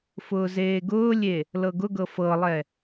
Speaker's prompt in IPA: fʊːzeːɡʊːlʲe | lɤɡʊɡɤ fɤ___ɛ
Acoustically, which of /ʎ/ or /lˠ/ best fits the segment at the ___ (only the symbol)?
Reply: lˠ